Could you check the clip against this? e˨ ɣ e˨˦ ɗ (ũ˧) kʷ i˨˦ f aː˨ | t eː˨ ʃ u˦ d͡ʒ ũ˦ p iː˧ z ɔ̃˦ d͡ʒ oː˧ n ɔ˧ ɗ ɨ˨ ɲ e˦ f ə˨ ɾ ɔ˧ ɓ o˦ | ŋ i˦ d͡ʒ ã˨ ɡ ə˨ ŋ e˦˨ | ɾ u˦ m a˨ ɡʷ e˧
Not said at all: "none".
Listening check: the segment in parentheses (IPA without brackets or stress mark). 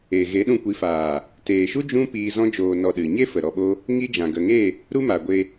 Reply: ũ˧